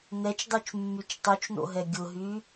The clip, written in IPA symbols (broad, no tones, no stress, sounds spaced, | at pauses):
n ɛ t͡ʃ dˤ y t͡ʃ mː y t͡ʃ tˤ y t͡ʃ n o̰ ɦ ɛ ɡʲ ʊ ɦ y